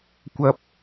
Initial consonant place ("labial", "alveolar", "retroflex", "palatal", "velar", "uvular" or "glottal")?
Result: velar